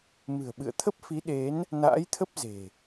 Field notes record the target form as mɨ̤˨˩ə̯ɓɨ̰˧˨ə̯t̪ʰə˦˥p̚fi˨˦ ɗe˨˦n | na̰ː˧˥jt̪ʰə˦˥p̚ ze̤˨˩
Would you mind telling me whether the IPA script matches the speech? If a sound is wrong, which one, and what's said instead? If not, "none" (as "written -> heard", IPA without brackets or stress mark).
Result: none